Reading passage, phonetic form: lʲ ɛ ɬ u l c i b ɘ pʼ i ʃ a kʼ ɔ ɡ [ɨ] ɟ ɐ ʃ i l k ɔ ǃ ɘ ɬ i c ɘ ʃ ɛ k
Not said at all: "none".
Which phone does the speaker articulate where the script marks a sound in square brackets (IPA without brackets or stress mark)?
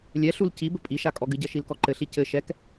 ɨ